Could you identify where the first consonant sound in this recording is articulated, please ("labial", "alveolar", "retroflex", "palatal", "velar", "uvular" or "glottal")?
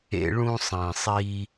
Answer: retroflex